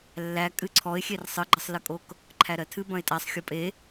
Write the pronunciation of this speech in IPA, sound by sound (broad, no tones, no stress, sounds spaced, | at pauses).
lː æ kʼ ɨ ǀʰ ɔ ɪ̯ xʲ e r sˤ ɨ ɡ͡ǃ ə sˤ l ɨ kʼ o k | ǃʰ æ ɾ ɜ tʰ ɨ b ɐ̃ ɪ̯ tʼ æ sˤ xʲ o pʼ e